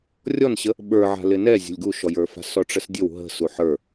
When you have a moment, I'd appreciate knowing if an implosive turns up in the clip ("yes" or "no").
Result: yes